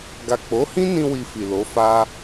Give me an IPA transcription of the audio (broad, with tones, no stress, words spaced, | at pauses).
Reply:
ɡa˨k͡po˨˦hĩ˦nĩ˧ wi˧fi˨lo˨˦fa˦